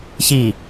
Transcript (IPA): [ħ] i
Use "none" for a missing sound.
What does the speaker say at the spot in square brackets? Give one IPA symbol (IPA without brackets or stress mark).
ç